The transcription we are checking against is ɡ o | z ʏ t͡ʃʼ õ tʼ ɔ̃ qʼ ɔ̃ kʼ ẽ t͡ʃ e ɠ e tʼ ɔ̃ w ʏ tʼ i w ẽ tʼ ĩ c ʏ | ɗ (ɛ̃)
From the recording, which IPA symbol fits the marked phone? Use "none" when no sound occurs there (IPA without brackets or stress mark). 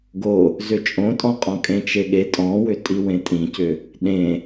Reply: ẽ